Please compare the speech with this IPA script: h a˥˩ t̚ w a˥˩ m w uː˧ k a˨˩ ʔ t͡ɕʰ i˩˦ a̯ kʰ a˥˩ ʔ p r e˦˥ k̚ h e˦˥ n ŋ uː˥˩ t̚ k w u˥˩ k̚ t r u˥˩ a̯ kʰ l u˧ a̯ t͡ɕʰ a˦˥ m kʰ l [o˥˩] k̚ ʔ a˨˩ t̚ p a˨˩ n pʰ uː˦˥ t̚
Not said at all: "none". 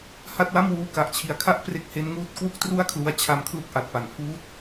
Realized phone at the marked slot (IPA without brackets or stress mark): u˥˩